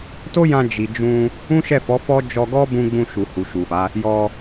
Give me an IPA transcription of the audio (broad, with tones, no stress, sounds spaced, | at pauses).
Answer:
t o˦ j ã˧ d͡ʒ i˨ d͡ʒ ũ˧ | ũ˦ ʃ ɛ˦˨ f ɔ˨˦ f ɔ˦ d͡ʒ ɔ˧ ɡ ɔ˦ b ũ˧ ɡ͡b ũ˧ ʃ u˨ h u˨ ʃ u˨ f a˨˦ | j ɔ˧